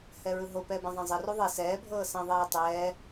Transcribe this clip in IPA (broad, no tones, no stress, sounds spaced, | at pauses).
h ɛ ɹ ɯ ɦ o p ɛː b ɛ̃ zˤ ɛ̃ zˤ i r u ðˤ e s ɛː bʱ ɤː s ã ðˤ ɛː tˤ ɛː